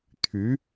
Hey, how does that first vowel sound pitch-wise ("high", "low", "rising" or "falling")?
rising